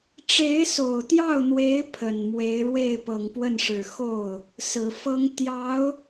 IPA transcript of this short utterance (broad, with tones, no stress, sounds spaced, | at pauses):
ʈ͡ʂ e˧˥ ɪ̯ s o˨˩ ʊ̯ t̪ j ɑ˥˩ ʊ̯ n̪ w e˧˥ ɪ̯ pʰ ə˨˩ n m w e˧˥ ɪ̯ ɻ w e˥˩ ɪ̯ p ɤ˨˩ ŋ p w ə˥˩ n ʂ ɻ̩˨˩ x o˥˩ ʊ̯ | s ɹ̩˨˩ f ɤ˥ ŋ t̪ j ɑ˧˥ ʊ̯